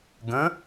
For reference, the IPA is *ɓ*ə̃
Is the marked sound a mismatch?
yes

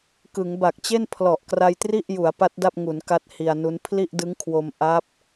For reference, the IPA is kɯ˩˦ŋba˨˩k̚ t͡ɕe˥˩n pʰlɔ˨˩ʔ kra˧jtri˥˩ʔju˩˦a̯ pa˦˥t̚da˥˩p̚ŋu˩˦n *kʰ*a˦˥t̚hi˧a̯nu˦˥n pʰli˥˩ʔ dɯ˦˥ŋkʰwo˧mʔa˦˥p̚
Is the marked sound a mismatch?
yes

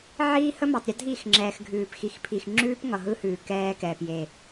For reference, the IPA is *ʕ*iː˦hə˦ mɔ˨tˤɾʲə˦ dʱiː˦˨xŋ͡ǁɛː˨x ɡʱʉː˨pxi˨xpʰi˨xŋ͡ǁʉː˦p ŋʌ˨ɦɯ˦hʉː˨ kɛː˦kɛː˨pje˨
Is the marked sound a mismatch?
no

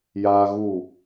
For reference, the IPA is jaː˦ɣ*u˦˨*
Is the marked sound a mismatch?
no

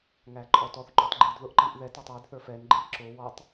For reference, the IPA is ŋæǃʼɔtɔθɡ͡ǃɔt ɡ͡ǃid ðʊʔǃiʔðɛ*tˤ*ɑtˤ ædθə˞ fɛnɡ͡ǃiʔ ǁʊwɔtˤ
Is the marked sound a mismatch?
yes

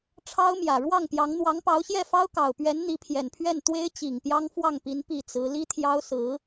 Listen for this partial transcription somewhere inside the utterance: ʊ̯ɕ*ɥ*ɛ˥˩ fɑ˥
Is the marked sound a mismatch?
yes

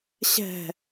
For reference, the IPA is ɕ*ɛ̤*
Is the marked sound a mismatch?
no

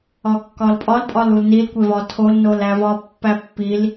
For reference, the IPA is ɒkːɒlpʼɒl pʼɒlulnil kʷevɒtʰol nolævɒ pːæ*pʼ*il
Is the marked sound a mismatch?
yes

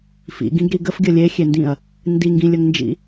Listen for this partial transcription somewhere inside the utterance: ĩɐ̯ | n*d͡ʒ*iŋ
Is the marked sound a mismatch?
yes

